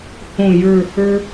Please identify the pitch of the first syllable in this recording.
falling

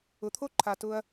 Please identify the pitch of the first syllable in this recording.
low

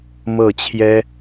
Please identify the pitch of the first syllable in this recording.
falling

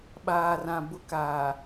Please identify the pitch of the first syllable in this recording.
low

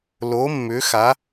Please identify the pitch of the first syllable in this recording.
rising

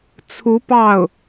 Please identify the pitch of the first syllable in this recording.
rising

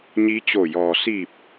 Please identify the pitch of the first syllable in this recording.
rising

